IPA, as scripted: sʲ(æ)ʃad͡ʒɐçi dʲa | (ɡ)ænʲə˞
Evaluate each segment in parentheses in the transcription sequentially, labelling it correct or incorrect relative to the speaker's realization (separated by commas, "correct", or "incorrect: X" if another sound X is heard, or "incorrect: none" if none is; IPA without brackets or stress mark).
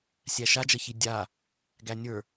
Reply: correct, correct